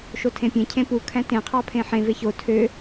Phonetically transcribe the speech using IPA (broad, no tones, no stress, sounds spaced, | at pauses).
ʃ o tʰ ẽ pʲ ẽ cʰ ẽ p u kʰ æ̃ t ẽ qʰ ɑ pʰ ẽ ħ ẽ v e ç o tʰ ø